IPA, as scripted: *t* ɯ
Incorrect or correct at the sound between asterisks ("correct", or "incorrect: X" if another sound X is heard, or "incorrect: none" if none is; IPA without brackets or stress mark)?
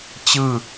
incorrect: t͡ɕ